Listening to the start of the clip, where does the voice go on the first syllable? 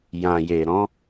low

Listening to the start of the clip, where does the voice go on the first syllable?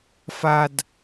low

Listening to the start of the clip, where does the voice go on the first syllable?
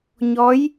rising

